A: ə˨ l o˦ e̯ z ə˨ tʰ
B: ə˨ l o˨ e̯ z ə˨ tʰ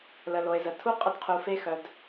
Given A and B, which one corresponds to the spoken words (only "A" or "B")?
B